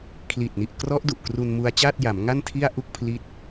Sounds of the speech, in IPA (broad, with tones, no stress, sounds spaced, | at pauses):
kʰ l i˨˩ t̚ n i˨˩ ʔ k r ɔ˦˥ ʔ d u˨˩ ʔ k r u˧ n m u˧ a̯ t͡ɕ aː˥˩ t̚ j a˩˦ m ŋ a˥˩ n tʰ i˥˩ a̯ ʔ u˥˩ k̚ pʰ l i˦˥ t̚